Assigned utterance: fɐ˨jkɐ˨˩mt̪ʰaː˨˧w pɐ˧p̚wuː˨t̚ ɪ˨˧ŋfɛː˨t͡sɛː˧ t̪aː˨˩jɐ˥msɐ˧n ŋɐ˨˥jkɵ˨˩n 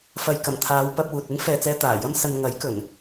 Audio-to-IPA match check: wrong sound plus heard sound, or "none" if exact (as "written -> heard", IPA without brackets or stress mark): ɪ˨˧ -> ɪ˥